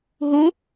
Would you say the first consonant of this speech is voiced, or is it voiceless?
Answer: voiced